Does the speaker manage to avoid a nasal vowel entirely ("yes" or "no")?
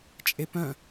no